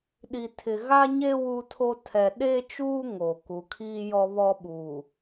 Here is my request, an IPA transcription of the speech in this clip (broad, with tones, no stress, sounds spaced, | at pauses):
ɗ i˨ tʰ ɪ˨ ɣ a˦ ɲ e˦ w u˦ tʰ o˦ tʰ ɛ˨ ɗ e˦ t͡ʃ uː˦ ŋ o˨ k u˨ kʰ iː˦ j ɔ˦ β ɔ˦ ɓ uː˨